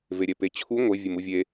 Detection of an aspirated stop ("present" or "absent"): present